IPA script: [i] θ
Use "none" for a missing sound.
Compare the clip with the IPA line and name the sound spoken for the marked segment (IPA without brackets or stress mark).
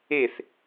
e